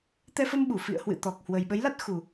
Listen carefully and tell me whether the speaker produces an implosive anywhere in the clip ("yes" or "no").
yes